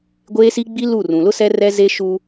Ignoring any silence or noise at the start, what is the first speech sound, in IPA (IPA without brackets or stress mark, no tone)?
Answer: ɡʷ